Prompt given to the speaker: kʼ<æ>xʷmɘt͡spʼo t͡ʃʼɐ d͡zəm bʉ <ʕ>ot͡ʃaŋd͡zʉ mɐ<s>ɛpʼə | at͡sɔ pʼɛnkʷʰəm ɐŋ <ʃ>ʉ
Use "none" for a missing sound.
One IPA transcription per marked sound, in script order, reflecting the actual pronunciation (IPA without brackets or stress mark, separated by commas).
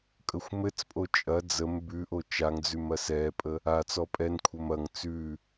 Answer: ə, ʔ, s, t͡s